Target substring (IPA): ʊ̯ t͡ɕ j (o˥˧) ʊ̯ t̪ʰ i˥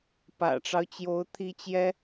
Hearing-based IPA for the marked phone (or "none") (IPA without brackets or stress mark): o˧˥